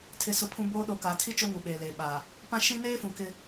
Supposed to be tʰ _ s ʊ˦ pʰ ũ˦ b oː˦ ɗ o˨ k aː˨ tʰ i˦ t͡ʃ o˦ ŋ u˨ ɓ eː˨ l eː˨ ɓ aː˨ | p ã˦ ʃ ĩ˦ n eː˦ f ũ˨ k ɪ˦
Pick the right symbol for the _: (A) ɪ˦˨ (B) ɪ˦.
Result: B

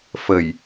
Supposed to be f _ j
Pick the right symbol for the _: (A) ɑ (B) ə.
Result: B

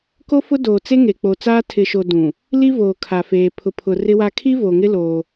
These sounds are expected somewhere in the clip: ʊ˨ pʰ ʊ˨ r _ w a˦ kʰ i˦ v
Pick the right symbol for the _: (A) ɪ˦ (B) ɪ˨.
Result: A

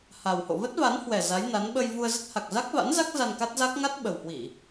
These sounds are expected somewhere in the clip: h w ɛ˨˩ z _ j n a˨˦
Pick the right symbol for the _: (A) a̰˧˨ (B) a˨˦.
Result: B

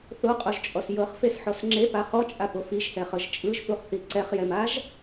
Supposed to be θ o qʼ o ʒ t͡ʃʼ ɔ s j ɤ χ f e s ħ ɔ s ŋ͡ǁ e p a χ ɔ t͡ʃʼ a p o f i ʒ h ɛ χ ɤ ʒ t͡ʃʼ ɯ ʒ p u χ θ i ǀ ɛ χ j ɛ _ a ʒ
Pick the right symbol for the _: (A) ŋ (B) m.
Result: B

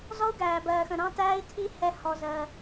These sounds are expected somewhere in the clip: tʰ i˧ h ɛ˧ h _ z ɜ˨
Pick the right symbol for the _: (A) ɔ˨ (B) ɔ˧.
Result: A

